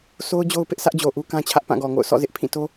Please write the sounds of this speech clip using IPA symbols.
sʰ o˦ ʊ̯ d͡ʑ o˦ ʊ̯ p ɪ˦ ʔ s ä˦ ʔ d͡ʑ o˨ ʔ u˦ k ã˦ t͡ɕʰ ä˦ ʔ p ã˦˨ ɡ ɔ˨ ŋ o̰˦˨ ʊ̯ sʰ ɔ̰˦˨ z ɪ˦ ʔ pʰ ĩ˦˨ t o˦

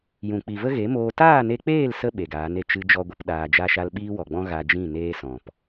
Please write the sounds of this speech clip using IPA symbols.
j ũ˨ k͡p i˨ v ə˦ ɣ e˨˦ m oː˧ t aː˦˨ n e˧ k͡p eː˦˨ l s ə˧ ɓ e˨ ɡ aː˨˦ n e˨ t͡ʃ ɨ˧ d͡ʒ ɔ˦ ɡʷ ə˦ p ɗ aː˧ d͡ʒ a˦ ʃ a˦ l ɓ iː˦ w ɔ˨ ɡ͡b ɔ̃˦ ɣ a˧ d͡ʒ ĩ˦˨ n eː˧ s ɔ̃˨ p

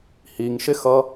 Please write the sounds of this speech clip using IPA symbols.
h i ŋ ʃ ɪ x ʌ

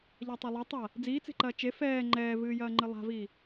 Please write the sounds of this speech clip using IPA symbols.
ʎ a tˤ o lˠ ɐ tˤ a | d͡z iː t͡s e̤ ǃ ɐː t͡ʃ e f ɛː ŋ͡ǃ ɛː v ɨː j ɐː ŋ͡ǃ ɨ lˠ a̤ v iː

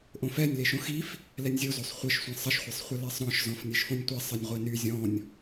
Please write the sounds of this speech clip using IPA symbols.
ʔ õ f ɛ nʲ l e ʃ õ x i f | l ɛ nʲ zʲ o z o sˤ χʷ ɘ ʃ sʷ ĩ sˤ ə ʃ χʷ e sˤ χʷ ə l e sˤ ɾ ɔ̃ ʃ z ɔ̃ f nʲ e ʃ f õ nʲ tʷ i sˤ ɘ nʲ ʁʷ e n y zʲ ɔ̃ nʲ

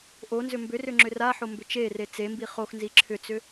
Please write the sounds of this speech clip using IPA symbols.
ʔ o n z ʏ m b ʏ r ʏ ŋ͡ǁ ʏ r a ħ o m b ʏ t͡ʃ e r e t͡s e m b i χ o x n z i ǁʰ ʏ t͡s ʏ

